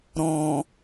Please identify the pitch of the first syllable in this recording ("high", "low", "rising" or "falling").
low